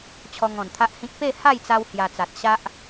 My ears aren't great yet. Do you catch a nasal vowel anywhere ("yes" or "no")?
yes